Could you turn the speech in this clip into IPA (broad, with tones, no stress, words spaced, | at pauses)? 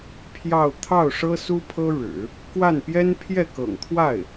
pʰjɑ˥˧ʊ̯ t̪ʰɑ˥˩ʊ̯ʂɤ˥ su˥pʰɤ˥ɻɻ̩˨˩˦ | kwa˥˩n pjɛ˥npʰjɛ˥˩kɤ̰˨˩ŋ t̪ʰwa˥˩ɪ̯